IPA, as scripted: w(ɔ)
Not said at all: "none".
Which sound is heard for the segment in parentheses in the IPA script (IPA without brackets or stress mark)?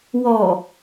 ɔ